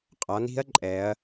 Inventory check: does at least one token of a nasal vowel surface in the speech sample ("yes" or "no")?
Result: no